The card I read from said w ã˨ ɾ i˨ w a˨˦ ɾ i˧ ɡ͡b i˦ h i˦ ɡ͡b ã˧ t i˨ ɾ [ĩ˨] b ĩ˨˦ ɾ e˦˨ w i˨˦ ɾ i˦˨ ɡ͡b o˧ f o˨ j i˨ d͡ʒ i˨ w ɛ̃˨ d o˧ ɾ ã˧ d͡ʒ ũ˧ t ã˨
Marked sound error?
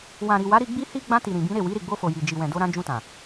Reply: no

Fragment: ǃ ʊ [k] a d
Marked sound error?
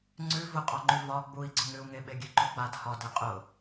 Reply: yes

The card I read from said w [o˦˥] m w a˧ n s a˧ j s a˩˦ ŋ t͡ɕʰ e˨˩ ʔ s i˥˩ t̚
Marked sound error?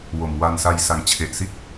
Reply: yes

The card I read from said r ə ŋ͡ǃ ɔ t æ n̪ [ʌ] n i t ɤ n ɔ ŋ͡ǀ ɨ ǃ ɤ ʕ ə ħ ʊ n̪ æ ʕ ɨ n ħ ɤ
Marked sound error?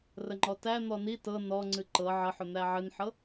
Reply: yes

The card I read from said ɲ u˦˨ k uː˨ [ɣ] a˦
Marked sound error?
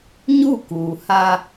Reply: yes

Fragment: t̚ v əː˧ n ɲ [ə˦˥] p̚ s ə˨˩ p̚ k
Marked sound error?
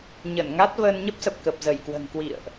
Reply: no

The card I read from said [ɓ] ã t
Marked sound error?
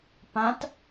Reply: yes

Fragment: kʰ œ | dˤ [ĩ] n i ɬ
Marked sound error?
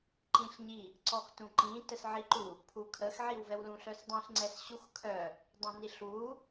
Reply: no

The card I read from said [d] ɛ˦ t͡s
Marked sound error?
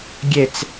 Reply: yes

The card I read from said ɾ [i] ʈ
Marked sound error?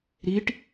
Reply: no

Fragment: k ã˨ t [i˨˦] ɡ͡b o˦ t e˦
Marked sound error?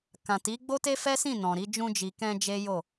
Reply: no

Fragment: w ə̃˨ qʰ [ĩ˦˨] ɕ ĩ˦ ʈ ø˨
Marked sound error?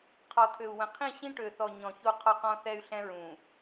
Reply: no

